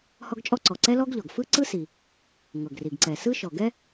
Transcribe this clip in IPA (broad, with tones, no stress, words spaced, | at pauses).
hɔ˥ɡt͡ʃʼɔ˥ǀɔ˩ ǀɛ˥lɔ˥ɡʎɔ˩ɡ fɯ˥ ǀɯ˥si˩ | ŋɤ˩ɡri˩ɡǀɛ˩ sɯ˥ʃɔ˩ ɡɛ˥